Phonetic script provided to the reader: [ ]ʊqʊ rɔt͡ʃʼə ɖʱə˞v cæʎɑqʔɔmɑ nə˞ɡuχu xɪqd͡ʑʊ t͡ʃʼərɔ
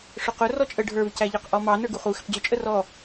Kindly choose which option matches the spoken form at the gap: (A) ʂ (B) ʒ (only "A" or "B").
A